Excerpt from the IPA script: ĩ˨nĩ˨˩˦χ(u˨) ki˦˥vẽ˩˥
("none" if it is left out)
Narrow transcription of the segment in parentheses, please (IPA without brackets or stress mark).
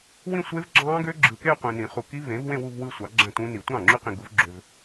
u˨